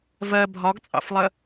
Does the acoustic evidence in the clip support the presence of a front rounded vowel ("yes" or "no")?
no